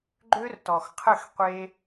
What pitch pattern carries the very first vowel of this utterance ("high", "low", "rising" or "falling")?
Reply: high